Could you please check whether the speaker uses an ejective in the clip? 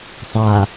no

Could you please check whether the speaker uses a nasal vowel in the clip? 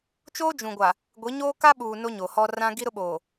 yes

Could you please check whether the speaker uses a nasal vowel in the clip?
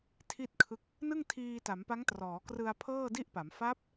no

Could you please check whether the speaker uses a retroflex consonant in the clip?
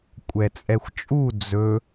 no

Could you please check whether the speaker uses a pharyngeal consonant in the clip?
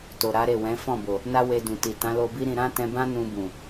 no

